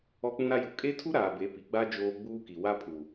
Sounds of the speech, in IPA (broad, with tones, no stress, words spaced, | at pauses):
ɔ˦k͡pũ˦ɾa˦ju˨ kʼe˦tʰu˦ɾaː˨ be˨˦pi˨ɡ͡ba˦ d͡ʒoː˦ ɡ͡buː˦ki˨ wa˦pʰu˨